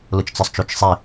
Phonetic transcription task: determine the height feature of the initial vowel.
high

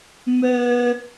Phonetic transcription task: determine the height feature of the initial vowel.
mid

